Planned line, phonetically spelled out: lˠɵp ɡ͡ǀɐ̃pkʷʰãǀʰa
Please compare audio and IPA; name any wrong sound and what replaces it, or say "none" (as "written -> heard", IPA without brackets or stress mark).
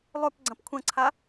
ã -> ɐ̃